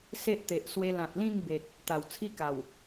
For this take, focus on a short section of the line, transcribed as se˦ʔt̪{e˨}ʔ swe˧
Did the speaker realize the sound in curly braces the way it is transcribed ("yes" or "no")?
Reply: yes